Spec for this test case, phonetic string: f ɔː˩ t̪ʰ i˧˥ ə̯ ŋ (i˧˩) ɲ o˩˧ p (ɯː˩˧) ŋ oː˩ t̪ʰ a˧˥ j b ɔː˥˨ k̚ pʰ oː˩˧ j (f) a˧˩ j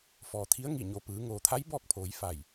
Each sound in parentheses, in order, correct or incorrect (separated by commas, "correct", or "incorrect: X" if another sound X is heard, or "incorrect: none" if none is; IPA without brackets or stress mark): correct, correct, correct